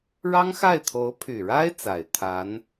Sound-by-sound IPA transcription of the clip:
ɻ ɑ˥ ŋ x a˥˩ ɪ̯ t̪ʰ o˧˥ ʊ̯ pʰ y˨˩ ɻ a˥ ɪ̯ t͡s a˨˩ ɪ̯ t̪ʰ a˧˥ n

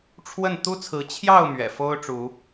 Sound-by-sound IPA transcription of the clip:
ʈ͡ʂʰ w ə˥˨ n t̪ u˦ t͡sʰ ɹ̩˨˦ t͡ɕʰ j ɑ˥˨ ʊ̯ m ɥ ɛ̰˨˩ f o˦ ʊ̯ ʈ͡ʂ u˨˦

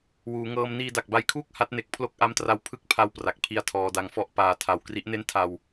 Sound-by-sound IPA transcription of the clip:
w uː˩˦ ŋ ɤː˧ m n iː˧ d a˨˩ k̚ b a˧ j kʰ uː˥˩ k̚ h a˦˥ t̚ n e˨˩ k̚ pʰ l o˥˩ k̚ ʔ a˦˥ m t r a˧ w pʰ ɯ˦˥ k̚ pʰ a˧ w p r a˨˩ k̚ pʰ i˦˥ a̯ tʰ ɔː˧ d a˧ ŋ f ɔ˦˥ ʔ p aː˧ tʰ a˧ w k r i˦˥ ʔ n e˥˩ n tʰ a˧ w

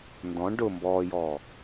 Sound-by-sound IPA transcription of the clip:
n d ɔ̃ ɳ ɖ ʊ m b ɔː j ɔː

